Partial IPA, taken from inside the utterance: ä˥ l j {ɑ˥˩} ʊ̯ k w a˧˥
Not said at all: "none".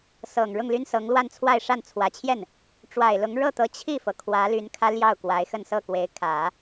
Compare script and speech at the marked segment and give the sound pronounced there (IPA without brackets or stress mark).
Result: ɑ˥˩